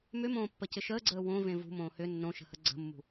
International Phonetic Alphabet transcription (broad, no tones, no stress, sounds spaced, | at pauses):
m ʏ m õː pː ə c ɪ ʃ əː ɡ͡ǀ əː w õ v ẽ v ṳ m õː h ʏ nː õ ʃ ə̤ h ə ɡ͡ǀ ə̤ mː ṳ